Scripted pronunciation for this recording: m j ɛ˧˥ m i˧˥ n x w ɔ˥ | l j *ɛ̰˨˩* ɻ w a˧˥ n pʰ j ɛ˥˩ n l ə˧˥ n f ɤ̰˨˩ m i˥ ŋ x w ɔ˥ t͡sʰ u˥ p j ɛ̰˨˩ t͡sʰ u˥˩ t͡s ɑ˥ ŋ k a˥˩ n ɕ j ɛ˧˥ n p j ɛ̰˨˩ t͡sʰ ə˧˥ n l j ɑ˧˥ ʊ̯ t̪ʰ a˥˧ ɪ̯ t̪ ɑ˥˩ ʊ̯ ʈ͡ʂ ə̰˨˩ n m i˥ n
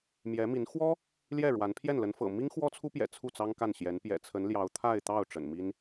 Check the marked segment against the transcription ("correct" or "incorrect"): incorrect